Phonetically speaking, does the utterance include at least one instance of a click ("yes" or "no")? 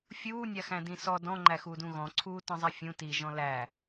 yes